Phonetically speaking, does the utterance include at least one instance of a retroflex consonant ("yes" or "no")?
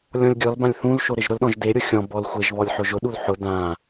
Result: no